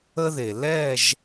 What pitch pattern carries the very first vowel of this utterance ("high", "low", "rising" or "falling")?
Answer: high